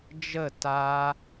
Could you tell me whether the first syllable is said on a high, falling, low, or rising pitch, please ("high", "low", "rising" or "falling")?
falling